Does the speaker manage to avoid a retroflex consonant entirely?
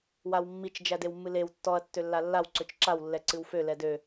yes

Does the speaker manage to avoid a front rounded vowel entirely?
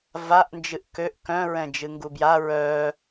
no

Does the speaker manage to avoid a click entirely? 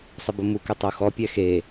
yes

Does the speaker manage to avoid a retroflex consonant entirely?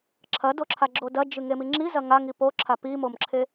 yes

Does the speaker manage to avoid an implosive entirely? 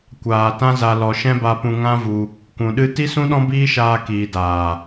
no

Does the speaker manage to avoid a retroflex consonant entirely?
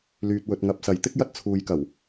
yes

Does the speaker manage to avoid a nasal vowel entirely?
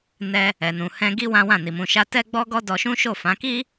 no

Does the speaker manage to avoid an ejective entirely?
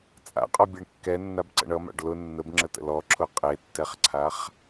no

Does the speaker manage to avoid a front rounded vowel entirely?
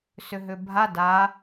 no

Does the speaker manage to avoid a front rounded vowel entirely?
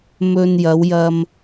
yes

